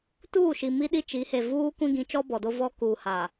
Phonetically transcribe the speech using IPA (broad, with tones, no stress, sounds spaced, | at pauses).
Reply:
t uː˦˨ ʃ i˨ m i˦ ɗ i˦ t͡ʃ i˨˦ h e˨ v uː˦ kʷ ĩ˦ ɡ ĩ˨˦ t͡ʃ ɔ˦ b ɔ˨ d o˦ v ɔ˦ k uː˨ h a˨